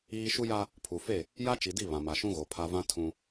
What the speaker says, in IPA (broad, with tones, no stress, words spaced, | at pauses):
iː˦ ʃu˦ja˦ | pʰu˨fe˦˨ | ja˦t͡ʃi˨di˦˨ βã˨ma˨ʃũ˦ɣo˨ pʰa˦ vã˦ tʰũ˦